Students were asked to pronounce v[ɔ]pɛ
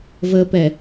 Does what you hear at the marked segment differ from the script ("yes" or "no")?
yes